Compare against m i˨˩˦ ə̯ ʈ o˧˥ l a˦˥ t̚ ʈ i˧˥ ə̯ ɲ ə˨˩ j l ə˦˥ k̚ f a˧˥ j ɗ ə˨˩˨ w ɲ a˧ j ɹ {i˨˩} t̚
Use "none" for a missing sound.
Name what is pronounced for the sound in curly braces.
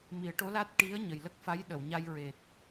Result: e˨˩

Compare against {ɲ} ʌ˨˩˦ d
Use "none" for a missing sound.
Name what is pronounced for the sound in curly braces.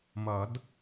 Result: m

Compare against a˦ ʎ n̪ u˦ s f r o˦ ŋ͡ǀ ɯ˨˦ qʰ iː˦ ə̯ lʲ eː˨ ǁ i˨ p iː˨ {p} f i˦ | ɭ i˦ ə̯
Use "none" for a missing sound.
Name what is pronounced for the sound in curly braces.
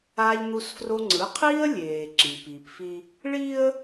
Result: p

